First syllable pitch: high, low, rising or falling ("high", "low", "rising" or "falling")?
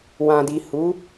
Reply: low